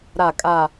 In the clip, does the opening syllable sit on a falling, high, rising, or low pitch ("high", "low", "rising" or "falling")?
low